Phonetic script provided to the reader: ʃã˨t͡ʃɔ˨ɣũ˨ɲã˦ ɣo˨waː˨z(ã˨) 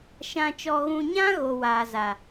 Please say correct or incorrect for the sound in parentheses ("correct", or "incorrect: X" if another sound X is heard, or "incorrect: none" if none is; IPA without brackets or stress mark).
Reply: incorrect: a˨